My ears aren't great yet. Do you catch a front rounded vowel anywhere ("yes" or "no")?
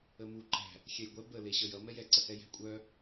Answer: yes